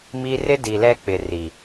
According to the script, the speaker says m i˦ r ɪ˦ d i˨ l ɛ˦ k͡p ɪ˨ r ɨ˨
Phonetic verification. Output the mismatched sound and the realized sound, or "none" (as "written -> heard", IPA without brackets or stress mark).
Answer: ɨ˨ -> i˨